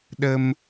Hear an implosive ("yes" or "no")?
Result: yes